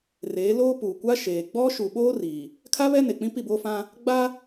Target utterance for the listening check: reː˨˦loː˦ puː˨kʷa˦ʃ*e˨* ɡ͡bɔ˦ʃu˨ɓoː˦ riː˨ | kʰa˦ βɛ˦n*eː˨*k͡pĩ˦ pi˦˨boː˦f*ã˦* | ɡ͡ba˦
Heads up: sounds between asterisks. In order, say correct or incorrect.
incorrect, incorrect, correct

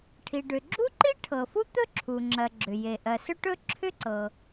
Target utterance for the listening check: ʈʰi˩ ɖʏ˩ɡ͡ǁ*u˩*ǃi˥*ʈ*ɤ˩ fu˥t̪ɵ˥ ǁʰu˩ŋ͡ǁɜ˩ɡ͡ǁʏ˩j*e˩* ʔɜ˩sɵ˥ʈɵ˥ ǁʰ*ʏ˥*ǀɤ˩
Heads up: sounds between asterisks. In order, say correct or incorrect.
incorrect, incorrect, correct, correct

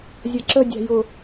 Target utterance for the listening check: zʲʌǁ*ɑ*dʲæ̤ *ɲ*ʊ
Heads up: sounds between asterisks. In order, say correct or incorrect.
incorrect, incorrect

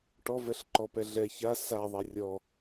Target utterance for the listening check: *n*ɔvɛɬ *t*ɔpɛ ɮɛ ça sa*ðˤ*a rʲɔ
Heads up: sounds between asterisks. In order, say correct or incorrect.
incorrect, incorrect, correct

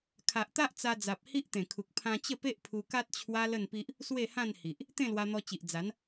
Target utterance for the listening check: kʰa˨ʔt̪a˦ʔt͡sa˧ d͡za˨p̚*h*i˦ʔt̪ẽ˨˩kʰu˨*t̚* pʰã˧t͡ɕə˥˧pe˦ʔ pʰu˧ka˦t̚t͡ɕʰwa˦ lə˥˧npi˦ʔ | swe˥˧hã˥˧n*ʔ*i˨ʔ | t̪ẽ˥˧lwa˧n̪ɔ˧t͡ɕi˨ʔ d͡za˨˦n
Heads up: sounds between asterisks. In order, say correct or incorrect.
correct, incorrect, incorrect

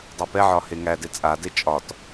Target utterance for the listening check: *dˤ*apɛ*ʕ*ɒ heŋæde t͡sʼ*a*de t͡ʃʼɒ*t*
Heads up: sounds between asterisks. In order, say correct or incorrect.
correct, correct, correct, correct

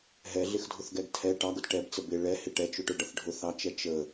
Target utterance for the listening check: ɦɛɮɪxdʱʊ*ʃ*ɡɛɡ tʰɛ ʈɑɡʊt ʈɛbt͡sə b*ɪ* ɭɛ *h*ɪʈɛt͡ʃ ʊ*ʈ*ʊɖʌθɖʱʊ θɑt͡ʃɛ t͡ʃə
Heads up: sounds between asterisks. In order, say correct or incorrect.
incorrect, correct, correct, correct

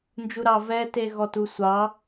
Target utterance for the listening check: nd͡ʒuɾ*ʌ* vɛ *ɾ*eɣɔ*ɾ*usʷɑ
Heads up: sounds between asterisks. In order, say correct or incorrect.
incorrect, incorrect, incorrect

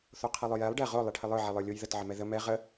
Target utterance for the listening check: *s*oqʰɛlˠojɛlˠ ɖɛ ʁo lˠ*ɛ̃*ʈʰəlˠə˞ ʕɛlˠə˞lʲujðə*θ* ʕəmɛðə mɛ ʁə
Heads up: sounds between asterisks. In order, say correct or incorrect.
incorrect, incorrect, incorrect

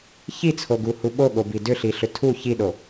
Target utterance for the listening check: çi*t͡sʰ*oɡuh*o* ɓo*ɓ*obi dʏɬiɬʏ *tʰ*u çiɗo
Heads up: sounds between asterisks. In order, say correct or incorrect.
correct, incorrect, incorrect, correct

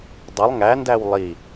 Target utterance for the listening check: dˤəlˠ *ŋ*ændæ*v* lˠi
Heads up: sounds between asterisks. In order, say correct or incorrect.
correct, incorrect

